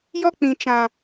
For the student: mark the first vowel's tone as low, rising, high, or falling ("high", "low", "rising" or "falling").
high